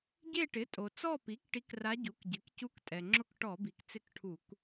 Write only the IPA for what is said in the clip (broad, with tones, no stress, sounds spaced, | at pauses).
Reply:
ɟ e˦˨ ʈ ɪ˩˥ tʼ o˩ t͡s ɔ˦˨ p i˩˥ k ʈ i˧˥ k r a˧˥ ɟ u˩˥ k ɟ ɪ˩˥ k c u˧˥ k tʼ ɛ˩ ŋ͡ǁ ʊ˦˨ k ʈ ɔ˧˩˧ b i˩ k t͡s ɪ˦˨ k ʈʰ u˧˩˧ k